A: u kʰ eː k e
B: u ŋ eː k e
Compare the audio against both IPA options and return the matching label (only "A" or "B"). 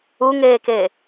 B